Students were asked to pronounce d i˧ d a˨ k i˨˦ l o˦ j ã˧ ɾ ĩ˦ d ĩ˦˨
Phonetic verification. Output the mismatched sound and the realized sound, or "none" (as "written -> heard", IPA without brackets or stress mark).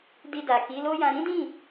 none